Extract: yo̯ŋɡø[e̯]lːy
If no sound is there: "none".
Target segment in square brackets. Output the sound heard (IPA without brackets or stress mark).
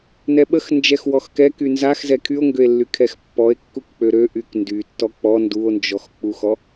e̯